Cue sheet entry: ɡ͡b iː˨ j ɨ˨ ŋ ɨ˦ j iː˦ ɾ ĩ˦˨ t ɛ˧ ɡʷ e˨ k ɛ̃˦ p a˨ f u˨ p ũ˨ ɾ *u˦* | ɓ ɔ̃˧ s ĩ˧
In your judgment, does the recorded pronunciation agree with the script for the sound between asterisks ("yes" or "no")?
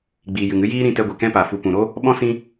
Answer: no